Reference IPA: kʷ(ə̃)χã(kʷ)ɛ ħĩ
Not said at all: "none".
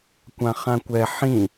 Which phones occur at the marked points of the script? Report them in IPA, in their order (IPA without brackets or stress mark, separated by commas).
ã, kʷ